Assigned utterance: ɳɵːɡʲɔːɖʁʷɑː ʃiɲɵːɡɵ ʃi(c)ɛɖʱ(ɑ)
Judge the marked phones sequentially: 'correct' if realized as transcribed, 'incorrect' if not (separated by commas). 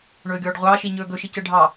correct, correct